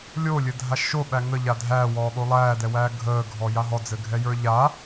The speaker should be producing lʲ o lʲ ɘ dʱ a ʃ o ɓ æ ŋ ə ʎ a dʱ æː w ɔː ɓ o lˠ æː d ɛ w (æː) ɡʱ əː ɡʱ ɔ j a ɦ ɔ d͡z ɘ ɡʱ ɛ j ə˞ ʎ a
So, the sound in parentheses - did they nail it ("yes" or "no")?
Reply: yes